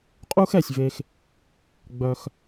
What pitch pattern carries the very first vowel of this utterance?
high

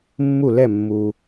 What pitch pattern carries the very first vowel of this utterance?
falling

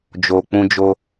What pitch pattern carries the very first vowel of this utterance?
low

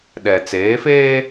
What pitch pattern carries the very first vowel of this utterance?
low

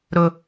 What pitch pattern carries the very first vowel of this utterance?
high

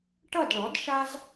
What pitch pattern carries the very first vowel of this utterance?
falling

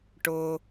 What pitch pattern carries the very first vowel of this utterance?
low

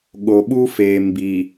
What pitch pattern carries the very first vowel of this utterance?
low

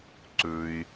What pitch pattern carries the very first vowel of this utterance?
high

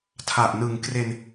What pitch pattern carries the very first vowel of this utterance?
low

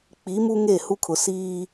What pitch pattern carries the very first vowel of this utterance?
rising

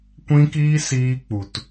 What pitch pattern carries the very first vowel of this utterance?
high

